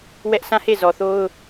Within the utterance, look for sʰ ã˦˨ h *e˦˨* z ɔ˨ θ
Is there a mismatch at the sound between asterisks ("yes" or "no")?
no